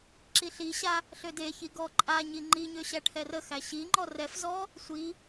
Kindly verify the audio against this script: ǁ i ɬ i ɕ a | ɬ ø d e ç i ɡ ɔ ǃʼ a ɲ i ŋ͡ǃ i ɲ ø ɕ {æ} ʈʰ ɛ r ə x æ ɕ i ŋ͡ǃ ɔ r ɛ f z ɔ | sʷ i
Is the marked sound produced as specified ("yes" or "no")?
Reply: yes